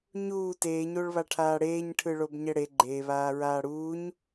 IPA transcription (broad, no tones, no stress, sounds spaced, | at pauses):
ɲ uː t eː ɲ o ɭ β a ʈʰ aː ɽ eː ɲ ʈʰ ɯ ɭ o b ɲ ɛ ɽ e ɡ͡ǃ e β aː ɹ aː ɽ uː ɲ